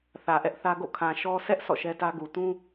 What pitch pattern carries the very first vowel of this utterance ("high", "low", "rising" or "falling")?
low